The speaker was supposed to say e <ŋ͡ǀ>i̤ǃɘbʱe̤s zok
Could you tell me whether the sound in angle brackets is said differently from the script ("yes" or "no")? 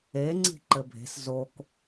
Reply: no